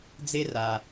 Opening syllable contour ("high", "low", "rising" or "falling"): high